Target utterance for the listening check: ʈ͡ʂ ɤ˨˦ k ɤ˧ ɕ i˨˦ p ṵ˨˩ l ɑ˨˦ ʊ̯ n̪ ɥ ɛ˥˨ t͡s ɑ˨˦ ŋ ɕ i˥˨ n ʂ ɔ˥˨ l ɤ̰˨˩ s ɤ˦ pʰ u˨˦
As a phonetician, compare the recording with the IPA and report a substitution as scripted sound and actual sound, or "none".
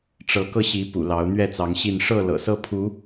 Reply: ɔ˥˨ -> ɤ˥˨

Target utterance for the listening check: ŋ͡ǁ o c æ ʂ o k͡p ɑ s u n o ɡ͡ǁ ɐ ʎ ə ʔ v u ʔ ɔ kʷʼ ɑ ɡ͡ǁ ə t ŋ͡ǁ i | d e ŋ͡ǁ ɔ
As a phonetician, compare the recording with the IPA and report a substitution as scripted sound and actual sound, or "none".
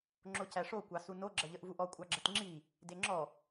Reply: k͡p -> kʷ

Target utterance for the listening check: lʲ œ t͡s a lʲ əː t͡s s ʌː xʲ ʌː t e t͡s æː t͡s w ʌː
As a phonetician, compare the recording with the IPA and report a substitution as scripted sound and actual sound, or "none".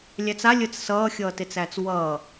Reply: œ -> æ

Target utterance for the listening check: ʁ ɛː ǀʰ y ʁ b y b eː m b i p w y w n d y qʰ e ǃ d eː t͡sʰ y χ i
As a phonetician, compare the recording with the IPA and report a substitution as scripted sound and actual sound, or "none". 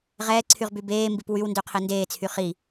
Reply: ǃ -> n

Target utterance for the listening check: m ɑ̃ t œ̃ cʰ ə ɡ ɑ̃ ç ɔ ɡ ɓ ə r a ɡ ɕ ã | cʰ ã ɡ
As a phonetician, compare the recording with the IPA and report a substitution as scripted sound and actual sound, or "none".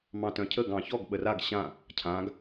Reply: none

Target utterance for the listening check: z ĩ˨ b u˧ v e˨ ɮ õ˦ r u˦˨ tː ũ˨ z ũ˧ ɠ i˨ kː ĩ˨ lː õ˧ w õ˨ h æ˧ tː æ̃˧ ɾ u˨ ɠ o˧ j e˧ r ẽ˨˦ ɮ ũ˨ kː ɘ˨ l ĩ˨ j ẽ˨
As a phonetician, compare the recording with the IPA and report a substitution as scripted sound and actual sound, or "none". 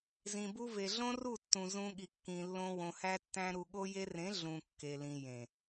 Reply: ɘ˨ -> e˨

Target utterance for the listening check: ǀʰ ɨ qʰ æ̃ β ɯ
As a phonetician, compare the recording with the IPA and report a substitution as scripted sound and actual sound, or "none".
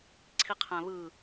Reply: ɨ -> i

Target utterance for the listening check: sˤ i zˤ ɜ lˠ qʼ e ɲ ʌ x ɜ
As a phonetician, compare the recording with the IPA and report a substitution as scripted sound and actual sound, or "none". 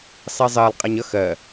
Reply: none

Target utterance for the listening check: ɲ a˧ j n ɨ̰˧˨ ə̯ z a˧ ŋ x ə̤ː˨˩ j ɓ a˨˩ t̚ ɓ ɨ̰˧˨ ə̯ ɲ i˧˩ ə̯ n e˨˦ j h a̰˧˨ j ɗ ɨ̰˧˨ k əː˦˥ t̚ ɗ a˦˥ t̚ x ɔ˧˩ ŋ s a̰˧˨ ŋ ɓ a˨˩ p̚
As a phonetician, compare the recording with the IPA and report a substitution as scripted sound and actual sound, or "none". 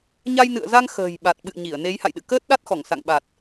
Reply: p̚ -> t̚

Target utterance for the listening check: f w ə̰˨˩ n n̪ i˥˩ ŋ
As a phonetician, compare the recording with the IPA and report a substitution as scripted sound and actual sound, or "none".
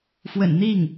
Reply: none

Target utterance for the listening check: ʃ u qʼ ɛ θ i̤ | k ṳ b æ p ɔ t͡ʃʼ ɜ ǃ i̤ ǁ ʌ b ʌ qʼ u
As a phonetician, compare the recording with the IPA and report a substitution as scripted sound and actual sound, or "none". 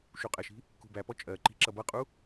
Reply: θ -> ʃ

